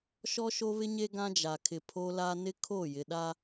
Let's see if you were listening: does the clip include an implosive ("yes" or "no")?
yes